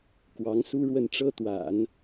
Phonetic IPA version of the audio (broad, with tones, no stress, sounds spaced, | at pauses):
k w ɑ˧˥ ŋ s u˥ ɻ w ə˥˩ n ʈ͡ʂ ɤ˥ t̪ w a̰˨˩˦ n